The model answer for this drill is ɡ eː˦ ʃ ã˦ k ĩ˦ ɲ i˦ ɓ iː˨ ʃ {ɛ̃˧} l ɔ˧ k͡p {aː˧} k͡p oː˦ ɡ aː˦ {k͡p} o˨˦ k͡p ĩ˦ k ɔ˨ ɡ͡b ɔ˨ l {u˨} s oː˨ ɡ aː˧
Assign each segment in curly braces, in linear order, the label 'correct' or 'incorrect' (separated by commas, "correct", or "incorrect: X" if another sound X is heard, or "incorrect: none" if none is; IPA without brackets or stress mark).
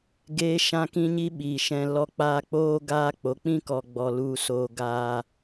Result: correct, correct, correct, correct